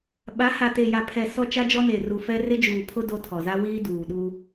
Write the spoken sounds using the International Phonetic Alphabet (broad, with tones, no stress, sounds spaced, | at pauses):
ɓ a˨˦ h a˨ t e˨ j a˨ pʰ ɛ˨ s ɔ˦ t͡ʃ a˦ d͡ʒ ɔ˦ n eː˨ r u˨ f ɛ˦ r ɪ˦ d͡ʒ uː˨ pʰ ʊ˦ d o˦ tʰ ɔ˨ z a˦ w iː˦ d uː˨ ɗ u˦